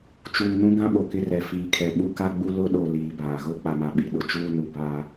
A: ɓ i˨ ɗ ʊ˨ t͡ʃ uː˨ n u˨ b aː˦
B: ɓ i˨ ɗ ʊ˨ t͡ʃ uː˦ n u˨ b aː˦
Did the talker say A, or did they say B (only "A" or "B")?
B